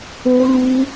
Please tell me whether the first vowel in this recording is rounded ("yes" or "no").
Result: yes